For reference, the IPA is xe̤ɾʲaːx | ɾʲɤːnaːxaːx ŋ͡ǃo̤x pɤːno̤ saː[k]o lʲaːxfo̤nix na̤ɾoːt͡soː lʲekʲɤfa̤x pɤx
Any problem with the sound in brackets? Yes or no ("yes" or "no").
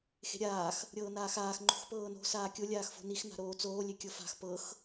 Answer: yes